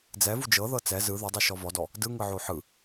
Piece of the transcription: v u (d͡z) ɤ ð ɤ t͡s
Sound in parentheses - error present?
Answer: yes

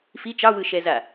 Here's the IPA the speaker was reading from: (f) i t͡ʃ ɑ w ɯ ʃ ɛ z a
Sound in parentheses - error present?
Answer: no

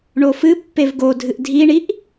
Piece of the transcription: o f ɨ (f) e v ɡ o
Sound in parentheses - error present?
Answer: yes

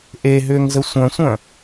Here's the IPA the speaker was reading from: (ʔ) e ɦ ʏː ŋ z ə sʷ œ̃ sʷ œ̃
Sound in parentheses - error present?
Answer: no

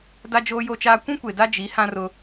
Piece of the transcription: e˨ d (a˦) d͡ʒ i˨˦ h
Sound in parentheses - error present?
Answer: no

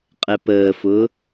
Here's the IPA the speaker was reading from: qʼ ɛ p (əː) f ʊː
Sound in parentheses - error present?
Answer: no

